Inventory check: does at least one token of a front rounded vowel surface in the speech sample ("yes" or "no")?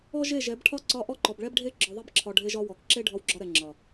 no